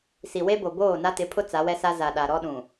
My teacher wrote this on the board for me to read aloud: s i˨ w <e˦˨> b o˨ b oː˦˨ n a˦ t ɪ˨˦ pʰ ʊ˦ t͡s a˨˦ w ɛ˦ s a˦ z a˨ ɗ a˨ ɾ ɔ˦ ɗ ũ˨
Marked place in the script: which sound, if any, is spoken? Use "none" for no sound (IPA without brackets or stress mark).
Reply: e˦